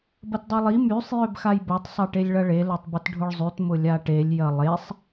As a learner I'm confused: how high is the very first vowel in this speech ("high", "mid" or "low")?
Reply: low